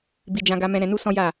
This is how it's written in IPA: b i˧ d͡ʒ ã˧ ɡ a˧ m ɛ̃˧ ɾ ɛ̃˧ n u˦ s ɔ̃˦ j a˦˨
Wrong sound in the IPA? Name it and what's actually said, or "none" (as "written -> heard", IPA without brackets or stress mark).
none